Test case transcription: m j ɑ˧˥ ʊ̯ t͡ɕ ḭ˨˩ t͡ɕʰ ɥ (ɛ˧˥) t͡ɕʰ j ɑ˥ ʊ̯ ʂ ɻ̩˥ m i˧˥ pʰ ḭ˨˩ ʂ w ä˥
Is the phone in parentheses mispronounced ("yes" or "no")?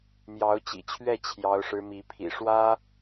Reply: yes